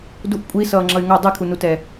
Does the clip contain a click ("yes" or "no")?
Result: yes